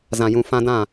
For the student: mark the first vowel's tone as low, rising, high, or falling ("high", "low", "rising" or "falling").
low